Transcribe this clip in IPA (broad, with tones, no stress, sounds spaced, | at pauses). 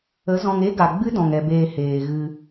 ə˨˦ z ɔ̃˧ ŋ e˦ ɡ a˨ ɡ͡b ɨ˦ d ɔ̃˨ ŋ ɛ˨ b eː˨ h eː˨ ɣ ɨ˧